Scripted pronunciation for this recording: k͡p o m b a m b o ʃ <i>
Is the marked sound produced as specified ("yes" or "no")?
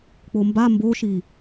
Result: yes